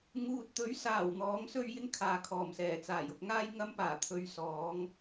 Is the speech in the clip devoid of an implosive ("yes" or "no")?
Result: yes